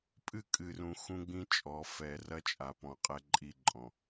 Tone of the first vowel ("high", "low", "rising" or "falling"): falling